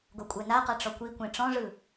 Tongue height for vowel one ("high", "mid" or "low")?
mid